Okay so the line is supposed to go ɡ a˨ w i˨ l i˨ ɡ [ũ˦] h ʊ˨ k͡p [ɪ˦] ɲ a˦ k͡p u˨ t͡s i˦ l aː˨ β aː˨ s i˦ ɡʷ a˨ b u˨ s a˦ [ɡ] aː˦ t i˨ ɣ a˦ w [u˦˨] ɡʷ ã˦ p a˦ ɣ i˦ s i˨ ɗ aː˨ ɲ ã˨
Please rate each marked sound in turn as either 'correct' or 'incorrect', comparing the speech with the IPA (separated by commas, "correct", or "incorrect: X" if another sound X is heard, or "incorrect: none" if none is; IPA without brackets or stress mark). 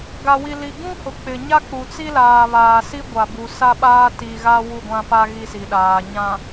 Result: correct, incorrect: ɪ˨, incorrect: ɓ, correct